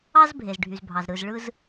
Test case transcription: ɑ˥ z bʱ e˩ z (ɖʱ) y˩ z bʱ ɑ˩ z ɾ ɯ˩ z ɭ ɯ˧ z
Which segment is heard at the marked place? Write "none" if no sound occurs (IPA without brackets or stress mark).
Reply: ɖʱ